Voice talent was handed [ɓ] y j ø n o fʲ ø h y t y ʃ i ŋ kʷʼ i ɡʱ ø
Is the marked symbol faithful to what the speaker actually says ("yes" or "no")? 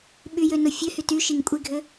yes